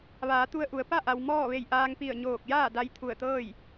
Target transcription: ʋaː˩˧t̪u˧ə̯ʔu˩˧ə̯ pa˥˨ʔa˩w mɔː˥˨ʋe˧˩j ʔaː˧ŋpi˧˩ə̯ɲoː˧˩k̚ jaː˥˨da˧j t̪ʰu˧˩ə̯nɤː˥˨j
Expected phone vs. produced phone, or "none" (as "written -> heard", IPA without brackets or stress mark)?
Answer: n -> t̪